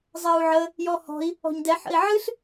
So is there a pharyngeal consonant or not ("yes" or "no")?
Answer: yes